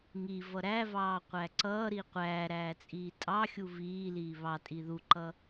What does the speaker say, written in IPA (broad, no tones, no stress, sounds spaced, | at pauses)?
ŋ i v ʌ ɾ æ v ɑː qʷ æ ǀ ʌː ɾ i qʷ æː ɾ æː t͡sʼ iː tʼ ɑ xʲ u v iː l iː β ɑ tʼ i ð u ǃ ʌ